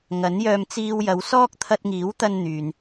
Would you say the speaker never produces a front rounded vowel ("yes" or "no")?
no